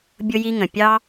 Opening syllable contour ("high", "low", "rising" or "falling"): high